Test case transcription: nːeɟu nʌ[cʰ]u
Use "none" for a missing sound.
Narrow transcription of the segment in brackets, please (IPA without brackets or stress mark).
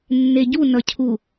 cʰ